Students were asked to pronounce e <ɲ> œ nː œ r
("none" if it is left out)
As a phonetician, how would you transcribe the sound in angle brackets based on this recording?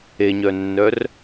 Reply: ɲ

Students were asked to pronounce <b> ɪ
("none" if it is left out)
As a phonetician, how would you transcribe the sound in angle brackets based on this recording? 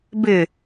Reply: b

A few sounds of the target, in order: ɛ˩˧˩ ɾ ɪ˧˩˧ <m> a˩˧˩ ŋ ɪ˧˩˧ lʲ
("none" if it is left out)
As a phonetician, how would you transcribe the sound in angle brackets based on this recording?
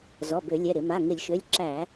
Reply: m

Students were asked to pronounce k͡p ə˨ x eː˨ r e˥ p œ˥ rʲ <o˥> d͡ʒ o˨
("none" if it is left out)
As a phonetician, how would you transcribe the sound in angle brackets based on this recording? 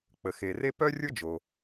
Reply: o˥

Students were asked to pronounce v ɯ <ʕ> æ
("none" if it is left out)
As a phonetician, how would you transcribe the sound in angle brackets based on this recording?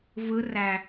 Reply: r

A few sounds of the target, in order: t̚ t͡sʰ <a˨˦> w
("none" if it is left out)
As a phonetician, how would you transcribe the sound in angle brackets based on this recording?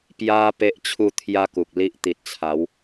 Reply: a˨˦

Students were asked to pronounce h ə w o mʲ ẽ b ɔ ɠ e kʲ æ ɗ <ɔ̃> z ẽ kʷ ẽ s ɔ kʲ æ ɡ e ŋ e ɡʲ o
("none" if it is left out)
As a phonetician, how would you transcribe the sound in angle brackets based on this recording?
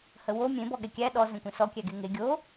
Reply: ɔ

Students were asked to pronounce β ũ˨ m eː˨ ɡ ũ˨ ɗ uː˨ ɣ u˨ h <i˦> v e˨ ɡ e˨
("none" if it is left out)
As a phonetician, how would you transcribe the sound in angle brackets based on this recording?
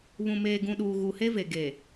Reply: e˦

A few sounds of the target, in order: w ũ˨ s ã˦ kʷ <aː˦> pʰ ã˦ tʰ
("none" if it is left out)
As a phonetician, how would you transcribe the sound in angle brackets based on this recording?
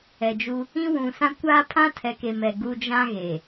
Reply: aː˦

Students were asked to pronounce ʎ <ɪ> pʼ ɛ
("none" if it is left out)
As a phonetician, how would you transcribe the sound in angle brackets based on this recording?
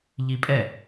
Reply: i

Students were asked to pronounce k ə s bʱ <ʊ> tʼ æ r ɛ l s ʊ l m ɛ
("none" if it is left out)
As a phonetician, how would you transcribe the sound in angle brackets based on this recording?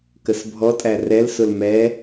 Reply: ɔ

